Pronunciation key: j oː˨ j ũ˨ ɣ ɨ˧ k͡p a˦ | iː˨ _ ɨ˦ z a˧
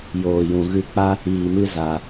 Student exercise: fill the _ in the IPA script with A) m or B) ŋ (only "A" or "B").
A